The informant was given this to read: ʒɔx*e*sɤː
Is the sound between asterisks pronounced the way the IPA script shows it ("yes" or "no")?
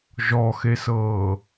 yes